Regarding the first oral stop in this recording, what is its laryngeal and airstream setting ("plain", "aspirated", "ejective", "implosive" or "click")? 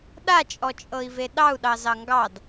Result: implosive